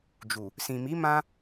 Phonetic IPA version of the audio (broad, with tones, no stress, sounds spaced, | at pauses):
d͡ʒ u˨ | s ĩ˨ m i˨˦ m ã˦